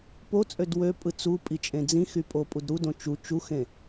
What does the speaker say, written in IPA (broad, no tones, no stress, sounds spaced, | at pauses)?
p o t͡sʼ ø d w ø pʼ ɯ t͡s u pʼ i t͡ʃʼ ẽ d͡z ĩ x y pʼ o pʼ u d ɾ u d õ t͡ʃ u t͡ʃ u x ẽ